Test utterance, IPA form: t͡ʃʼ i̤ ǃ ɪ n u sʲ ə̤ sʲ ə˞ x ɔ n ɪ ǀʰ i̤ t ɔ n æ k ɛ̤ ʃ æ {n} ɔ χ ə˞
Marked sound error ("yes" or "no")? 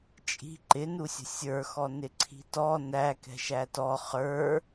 yes